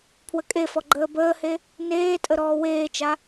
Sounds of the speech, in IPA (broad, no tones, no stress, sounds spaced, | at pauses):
pʰ w ə kʼ e f ɔ ɡ͡ǃ əː b əː h e | n eː tʼ ə ɾ ɔː w eː t͡ʃ a